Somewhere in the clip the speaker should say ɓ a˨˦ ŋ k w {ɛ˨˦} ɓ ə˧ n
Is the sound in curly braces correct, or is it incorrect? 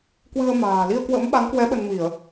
correct